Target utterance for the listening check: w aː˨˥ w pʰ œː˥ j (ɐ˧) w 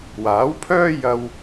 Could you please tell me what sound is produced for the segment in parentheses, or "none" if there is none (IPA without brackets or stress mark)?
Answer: ɐ˧